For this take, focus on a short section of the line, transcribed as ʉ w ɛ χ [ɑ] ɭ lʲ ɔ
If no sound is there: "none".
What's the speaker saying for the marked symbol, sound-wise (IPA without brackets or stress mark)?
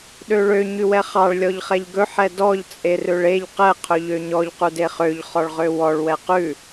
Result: ɑ